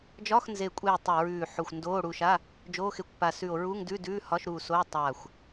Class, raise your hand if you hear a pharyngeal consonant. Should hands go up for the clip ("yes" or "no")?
yes